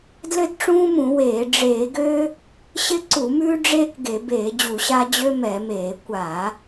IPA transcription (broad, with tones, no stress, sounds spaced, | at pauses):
d l ɘ˦ d ʈ͡ʂ ũː˦ m ũ˧˩˧ w eː˧˩˧ ɖ͡ʐ eː˧˩˧ ɡ ø˦ | ɕ ɪ˦ ǀ u˧˩˧ m ʉː˦ ɖ͡ʐ eː˦ k ɡ e˧˩˧ b eː˧˩˧ d͡ʑ u˧˩˧ ɕ a˦ d͡ʑ ø˦ m ɛ˧˩˧ m eː˧˩˧ kʷ a˧˩˧